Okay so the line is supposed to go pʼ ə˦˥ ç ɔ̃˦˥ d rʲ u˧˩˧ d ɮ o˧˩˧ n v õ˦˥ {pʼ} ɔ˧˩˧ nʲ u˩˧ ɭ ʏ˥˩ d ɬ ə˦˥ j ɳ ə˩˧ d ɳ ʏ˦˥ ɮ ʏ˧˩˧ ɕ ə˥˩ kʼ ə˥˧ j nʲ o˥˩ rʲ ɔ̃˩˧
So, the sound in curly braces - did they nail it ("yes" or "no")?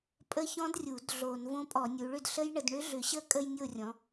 yes